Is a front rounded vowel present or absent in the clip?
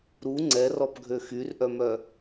present